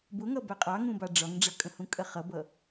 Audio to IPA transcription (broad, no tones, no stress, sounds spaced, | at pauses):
b ʊ ŋ ʌ b æ qʼ ɑ ŋ ũ b ɑ ɖ͡ʐ ɒ ŋ ɖ͡ʐ ʌ kʼ ə̃ h ũ kʼ ɜ χ ʌ b ʌ